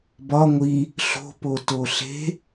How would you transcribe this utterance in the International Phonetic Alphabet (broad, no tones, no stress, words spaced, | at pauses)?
bɒ ŋʷi | ɬo̤poto ɬe̤